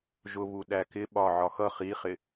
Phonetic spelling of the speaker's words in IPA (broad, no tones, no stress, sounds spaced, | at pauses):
ʒ ʊ β u ɗ æ k ɪ ɓ ɒ ʕ ɒ x ʌ χ i χ ɪ